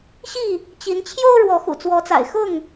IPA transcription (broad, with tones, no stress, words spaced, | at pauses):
ɕi˥˨ | t͡ɕi˨˦nt͡ɕʰjo˦ʊ̯ ɻwɔ˨˦xṵ˨˩t͡swɔ˨˦t͡sa̰˨˩ɪ̯ xʊ˥˨ŋ